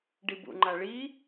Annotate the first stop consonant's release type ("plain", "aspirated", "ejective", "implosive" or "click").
plain